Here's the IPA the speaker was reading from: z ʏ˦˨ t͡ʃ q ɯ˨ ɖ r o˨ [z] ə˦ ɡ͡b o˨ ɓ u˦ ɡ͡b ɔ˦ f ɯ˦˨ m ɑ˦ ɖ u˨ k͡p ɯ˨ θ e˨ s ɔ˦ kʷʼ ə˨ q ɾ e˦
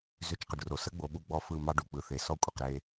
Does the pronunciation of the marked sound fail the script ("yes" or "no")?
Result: yes